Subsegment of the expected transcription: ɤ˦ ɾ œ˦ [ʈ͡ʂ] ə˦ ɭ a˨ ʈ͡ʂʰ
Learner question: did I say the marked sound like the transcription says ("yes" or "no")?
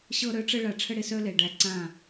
yes